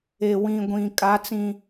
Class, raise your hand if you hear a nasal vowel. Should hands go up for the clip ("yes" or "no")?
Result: yes